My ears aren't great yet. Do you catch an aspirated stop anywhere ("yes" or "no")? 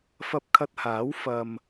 yes